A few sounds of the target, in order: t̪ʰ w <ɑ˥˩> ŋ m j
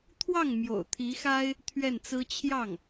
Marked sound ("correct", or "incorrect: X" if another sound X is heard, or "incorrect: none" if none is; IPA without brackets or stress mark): correct